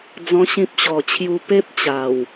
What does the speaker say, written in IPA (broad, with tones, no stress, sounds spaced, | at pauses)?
d͡z ɔ̃˦ ɕ ĩ˦ p̚ ɕ ɔ˨˩ t͡ɕʰ j u˧ p e˦ p̚ t͡ɕ a˨˩ w